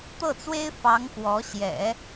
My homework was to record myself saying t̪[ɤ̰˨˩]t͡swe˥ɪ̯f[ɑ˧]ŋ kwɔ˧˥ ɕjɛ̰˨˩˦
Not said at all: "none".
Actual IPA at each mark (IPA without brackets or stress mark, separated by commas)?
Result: ɤ˥˩, ɑ˧˥